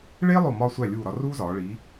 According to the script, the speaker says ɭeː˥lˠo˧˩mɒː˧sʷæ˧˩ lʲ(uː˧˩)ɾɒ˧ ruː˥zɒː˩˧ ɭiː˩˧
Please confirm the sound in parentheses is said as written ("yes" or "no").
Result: yes